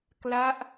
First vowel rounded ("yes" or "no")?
no